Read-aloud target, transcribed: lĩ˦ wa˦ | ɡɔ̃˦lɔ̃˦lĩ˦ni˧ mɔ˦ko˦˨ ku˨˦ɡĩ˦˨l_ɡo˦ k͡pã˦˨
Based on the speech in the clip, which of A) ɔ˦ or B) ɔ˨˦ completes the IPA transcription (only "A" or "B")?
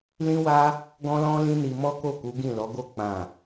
B